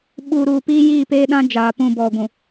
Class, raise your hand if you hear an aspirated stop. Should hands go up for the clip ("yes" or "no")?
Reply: no